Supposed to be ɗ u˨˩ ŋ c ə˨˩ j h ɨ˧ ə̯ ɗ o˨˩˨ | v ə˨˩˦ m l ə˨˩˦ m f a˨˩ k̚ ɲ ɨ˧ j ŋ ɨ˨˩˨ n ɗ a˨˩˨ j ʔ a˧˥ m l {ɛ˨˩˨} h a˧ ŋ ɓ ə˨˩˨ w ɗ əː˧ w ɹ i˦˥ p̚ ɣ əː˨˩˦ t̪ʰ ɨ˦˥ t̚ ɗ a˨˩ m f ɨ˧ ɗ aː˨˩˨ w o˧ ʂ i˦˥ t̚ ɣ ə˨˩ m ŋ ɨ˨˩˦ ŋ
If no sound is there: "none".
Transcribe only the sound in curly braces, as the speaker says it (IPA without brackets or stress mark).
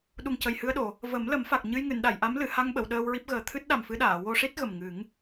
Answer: ɨ˨˩˨